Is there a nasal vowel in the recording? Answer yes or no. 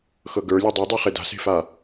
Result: no